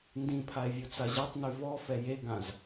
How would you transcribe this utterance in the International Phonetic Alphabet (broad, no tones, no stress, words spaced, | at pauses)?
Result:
ndĩpʰae̯ vʲut͡saʑatˤny vɔ fɛjeɡãz